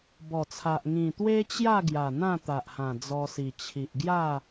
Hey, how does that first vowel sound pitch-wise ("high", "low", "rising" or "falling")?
low